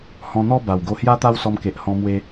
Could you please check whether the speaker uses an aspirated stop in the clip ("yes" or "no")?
no